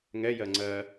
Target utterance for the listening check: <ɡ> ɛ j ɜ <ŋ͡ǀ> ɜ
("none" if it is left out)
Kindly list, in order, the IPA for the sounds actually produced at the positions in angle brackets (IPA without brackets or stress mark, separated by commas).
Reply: ŋ, ŋ͡ǀ